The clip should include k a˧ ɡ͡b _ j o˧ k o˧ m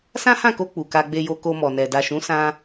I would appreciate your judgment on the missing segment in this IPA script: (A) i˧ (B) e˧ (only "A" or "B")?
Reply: B